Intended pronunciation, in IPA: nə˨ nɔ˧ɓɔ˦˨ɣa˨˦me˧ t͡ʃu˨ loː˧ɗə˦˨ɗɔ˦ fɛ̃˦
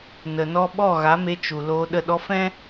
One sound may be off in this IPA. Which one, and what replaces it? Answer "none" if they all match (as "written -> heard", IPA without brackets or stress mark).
none